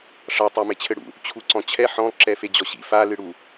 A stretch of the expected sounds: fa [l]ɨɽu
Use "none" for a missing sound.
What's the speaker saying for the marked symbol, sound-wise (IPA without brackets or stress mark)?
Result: l